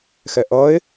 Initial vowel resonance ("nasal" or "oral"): oral